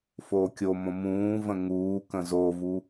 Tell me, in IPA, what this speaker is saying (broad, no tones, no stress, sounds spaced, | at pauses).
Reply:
f oː kʲ o m õ m ũː v ə̃ ŋ uː k ə̃ z o v u